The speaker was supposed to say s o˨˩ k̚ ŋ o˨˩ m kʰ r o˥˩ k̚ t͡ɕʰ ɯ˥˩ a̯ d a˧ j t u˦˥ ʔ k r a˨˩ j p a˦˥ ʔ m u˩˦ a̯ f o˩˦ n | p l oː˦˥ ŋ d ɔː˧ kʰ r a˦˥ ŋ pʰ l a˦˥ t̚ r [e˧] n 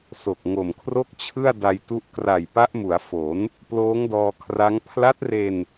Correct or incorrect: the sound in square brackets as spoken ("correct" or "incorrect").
correct